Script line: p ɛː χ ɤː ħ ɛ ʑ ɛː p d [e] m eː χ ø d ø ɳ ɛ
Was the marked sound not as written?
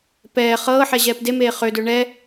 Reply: no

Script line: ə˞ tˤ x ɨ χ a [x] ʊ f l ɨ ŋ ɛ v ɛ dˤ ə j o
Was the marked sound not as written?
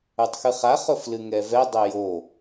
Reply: yes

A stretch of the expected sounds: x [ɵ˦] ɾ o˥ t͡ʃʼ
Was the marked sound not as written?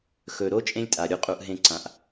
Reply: yes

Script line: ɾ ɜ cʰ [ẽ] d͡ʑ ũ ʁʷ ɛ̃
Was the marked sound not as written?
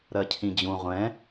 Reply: yes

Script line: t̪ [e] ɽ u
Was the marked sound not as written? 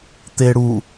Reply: no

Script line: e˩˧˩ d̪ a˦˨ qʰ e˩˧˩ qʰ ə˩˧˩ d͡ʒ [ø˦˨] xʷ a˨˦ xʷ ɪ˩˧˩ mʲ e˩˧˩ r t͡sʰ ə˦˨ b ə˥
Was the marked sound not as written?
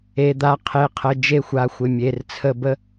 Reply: yes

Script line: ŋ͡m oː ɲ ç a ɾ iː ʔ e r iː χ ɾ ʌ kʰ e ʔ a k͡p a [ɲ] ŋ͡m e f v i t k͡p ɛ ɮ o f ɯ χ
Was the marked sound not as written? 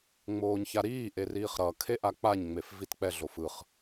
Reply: no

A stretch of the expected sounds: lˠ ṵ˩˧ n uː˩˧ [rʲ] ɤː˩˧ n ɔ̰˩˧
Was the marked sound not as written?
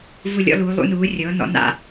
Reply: no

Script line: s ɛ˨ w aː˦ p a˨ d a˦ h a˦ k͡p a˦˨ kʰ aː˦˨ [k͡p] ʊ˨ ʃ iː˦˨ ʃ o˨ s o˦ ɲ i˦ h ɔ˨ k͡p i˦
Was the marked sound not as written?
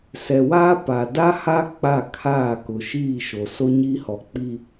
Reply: yes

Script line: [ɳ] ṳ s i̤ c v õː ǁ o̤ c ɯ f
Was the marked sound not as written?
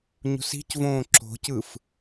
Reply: yes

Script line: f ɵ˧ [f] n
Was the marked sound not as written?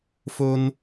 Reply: yes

